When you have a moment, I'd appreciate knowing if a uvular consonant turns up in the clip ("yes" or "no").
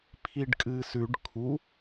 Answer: no